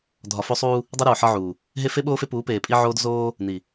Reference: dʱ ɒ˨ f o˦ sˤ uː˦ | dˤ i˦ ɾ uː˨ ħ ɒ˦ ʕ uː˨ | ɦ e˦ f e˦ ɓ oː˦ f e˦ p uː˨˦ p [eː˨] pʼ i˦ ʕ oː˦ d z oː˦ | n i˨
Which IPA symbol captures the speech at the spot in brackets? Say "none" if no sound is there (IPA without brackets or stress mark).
eː˨